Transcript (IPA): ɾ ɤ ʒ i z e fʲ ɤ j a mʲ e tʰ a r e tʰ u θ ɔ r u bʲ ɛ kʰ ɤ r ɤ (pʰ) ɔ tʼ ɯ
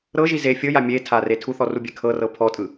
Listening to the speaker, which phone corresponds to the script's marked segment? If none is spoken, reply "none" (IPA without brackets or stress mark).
pʰ